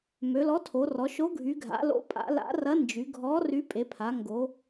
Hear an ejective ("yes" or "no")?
yes